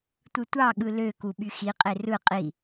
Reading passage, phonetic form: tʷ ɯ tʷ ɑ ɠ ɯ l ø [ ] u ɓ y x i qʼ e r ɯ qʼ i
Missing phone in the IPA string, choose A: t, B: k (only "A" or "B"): B